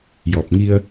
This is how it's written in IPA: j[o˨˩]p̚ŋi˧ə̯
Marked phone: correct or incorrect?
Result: incorrect